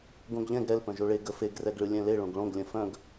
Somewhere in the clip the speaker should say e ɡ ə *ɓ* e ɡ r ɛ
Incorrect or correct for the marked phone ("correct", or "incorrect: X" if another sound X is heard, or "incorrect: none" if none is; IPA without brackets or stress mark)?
incorrect: f